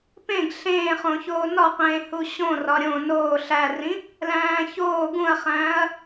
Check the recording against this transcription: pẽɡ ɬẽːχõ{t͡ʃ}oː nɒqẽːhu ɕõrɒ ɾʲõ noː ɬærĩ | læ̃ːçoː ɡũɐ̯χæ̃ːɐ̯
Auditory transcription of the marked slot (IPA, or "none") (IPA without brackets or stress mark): ç